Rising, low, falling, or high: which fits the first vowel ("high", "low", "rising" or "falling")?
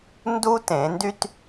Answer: high